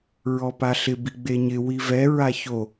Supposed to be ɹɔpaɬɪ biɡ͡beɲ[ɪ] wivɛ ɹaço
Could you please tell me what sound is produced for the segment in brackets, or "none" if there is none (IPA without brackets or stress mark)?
ɪ